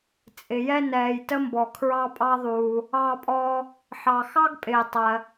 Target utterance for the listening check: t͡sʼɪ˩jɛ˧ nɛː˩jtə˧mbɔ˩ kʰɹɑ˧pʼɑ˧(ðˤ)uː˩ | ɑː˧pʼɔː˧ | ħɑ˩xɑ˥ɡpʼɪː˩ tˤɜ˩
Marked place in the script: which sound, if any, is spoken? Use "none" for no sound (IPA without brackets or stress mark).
ðˤ